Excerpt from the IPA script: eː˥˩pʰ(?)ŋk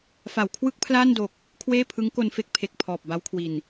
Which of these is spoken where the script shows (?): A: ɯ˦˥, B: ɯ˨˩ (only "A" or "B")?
A